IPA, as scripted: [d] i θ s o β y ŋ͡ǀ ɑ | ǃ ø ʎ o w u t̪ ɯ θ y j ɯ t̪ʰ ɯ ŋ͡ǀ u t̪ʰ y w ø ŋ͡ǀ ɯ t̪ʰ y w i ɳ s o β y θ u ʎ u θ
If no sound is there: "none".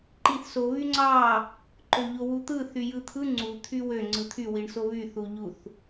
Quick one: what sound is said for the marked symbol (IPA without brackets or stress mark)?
ǃ